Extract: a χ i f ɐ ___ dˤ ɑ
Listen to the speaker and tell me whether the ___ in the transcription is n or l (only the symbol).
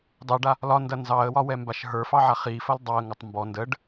l